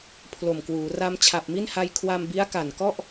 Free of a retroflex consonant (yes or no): yes